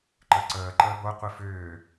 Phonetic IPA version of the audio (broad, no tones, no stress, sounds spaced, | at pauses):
ǃ ə ǀ əː ǃ əː b o qʷ i f ʏː